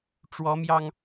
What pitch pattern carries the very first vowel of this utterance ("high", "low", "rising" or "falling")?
rising